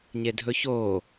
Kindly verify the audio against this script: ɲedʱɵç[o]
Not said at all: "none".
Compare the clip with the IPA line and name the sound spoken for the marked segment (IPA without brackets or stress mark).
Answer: oː